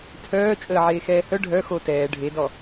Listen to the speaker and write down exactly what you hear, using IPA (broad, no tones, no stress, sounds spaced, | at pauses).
tʰ œː t͡ʃʼ əː ʕ eː x ɛː h œ ɖʱ œ x o t ɛː ɖʱ e d ɔ